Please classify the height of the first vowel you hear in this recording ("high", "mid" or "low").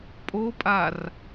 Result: mid